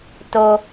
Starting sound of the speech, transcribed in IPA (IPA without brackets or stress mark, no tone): t